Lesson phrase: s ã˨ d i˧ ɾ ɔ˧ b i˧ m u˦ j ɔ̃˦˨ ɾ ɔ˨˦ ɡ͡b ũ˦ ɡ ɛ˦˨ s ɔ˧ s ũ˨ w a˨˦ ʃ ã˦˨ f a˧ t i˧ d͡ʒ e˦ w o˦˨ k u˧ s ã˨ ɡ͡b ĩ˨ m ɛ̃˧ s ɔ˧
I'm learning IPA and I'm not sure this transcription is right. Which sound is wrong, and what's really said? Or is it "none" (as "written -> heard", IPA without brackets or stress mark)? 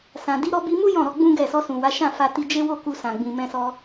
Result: none